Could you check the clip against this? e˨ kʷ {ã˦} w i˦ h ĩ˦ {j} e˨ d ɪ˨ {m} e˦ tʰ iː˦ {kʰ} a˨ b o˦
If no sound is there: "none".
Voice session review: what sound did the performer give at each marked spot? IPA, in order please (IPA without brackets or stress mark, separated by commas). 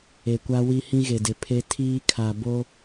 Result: a˦, ɣ, pʰ, kʰ